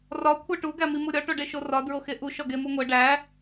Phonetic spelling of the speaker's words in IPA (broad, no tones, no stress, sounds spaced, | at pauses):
r ɒ kʷʰ e ʈ u ɡ æ m i m u ɾʲ ɒ ʈ o ɖ e ʃ o r ɒ d ɹ o x e ʔ u ʃ ɒ ɡ e m u ŋʷ e ɖ æ